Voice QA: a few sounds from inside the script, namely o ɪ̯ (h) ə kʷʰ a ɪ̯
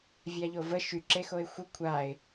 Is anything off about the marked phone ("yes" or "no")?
yes